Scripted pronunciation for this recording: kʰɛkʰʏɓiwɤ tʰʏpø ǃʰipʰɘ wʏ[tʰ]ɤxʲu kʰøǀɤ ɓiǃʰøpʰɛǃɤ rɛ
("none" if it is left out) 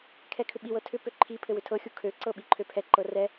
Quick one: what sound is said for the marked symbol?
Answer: tʰ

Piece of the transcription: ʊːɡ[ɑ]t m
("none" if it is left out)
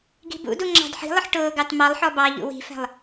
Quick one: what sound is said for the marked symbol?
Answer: ɑ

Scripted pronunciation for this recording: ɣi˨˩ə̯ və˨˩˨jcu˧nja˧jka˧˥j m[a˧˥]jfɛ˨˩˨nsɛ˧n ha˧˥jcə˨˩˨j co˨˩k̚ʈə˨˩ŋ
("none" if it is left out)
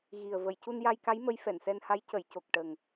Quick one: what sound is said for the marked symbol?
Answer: ə˧˥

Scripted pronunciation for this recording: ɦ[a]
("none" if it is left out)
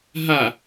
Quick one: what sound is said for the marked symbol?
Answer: a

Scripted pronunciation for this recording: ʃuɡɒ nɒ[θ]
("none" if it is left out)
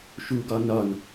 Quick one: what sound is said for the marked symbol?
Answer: n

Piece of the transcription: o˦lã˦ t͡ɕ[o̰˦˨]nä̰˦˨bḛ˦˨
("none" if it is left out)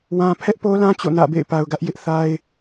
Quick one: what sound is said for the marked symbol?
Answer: o̰˦˨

